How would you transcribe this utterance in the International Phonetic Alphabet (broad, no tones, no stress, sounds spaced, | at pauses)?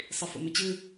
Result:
sˤ i f o̰ m ɵ t͡ɕ ɨ